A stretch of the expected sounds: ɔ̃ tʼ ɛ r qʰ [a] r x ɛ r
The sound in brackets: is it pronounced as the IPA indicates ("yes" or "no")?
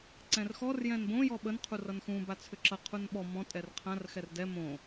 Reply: no